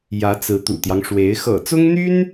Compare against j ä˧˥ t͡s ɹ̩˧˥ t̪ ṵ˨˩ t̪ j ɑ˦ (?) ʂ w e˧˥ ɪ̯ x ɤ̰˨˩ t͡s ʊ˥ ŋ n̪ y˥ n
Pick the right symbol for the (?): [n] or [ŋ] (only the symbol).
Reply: ŋ